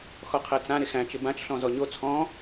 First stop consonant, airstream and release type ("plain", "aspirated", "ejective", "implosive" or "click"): aspirated